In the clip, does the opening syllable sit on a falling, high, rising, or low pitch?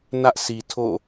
high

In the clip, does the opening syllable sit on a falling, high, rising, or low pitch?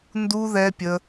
high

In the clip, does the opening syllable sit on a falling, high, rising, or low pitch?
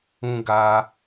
high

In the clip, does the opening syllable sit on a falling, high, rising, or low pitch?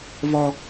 high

